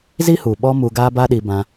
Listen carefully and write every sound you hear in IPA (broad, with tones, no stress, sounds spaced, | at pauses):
z i˦ h u˨ ɓ ɔ˧ m u˧ ɡ aː˦ b a˦ ɗ i˧ b ã˧